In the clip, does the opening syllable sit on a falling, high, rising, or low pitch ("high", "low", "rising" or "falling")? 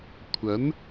rising